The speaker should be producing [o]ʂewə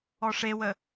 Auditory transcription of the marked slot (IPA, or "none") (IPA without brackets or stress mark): ɔ